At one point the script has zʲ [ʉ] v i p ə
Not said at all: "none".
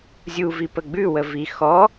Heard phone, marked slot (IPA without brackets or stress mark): u